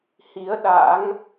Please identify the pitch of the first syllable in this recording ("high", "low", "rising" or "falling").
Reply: rising